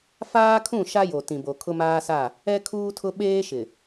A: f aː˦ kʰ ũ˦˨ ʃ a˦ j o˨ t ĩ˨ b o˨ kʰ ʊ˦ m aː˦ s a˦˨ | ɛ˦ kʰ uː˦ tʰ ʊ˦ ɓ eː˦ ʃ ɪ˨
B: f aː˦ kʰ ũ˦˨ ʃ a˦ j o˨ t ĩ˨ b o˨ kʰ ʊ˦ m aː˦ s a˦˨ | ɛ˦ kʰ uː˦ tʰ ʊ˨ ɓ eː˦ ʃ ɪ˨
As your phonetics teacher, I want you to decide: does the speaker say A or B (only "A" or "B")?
A